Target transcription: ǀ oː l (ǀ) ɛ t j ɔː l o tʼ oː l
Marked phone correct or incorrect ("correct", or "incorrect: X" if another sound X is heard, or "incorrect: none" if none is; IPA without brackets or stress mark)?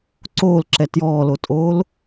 incorrect: ǁ